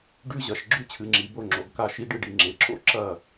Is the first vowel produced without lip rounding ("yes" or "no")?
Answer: no